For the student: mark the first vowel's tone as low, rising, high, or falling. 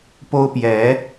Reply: high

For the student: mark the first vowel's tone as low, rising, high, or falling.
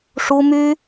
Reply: high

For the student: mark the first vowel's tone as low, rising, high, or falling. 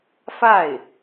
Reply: falling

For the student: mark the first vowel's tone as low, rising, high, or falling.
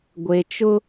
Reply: low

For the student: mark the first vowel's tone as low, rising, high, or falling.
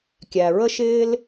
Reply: low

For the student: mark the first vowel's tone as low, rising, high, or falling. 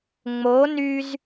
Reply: rising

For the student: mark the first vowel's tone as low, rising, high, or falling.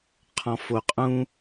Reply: low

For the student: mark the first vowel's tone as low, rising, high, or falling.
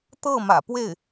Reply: falling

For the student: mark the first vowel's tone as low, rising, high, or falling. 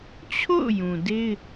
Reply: falling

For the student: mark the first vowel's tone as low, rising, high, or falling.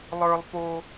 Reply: high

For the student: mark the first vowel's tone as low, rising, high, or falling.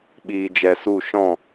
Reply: low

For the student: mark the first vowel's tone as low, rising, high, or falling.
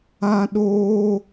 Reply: high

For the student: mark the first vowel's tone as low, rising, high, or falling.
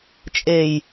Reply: low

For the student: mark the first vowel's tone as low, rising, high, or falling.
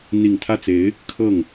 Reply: low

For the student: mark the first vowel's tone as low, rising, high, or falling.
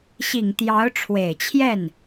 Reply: low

